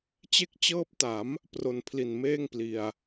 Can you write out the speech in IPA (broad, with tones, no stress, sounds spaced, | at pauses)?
t͡ɕ e˦˥ k̚ t͡ɕ ɤː˦˥ p̚ t a˩˦ m | p r o˨˩ n pʰ l i˨˩ n m eː˥˩ ŋ p l i˨˩ a̯